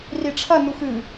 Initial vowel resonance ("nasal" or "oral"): oral